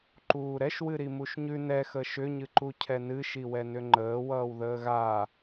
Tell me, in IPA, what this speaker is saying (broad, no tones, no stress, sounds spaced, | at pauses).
ǃ uː ɾ ɛ ʃ w ɨ ɾ i m u ʃ ɲ ʉ n ɛ x ə ʃ ʏ ɲ ɨ ǃ u cʰ ɛ n ɨ ʃ i w ɛ n ʏ ŋ͡ǃ əː w ʌː w ð əː ɣ aː